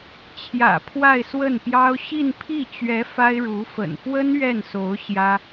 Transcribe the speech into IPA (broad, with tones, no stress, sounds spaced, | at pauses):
t͡ɕʰ j ä̰˨˩ pʰ w a˥˧ ɪ̯ s w ə˥˩ n p j ɑ˥ ʊ̯ ɕ i˥˧ n pʰ i˥˩ t͡ɕ ɥ ɛ˧˥ f a˥ ɪ̯ ɻ u˧˥ f ə̰˨˩ n f w ə˥ n ɥ ɛ˥˩ n s o˧˥ ʊ̯ ɕ j ä˥